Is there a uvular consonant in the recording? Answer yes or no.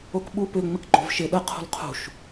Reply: yes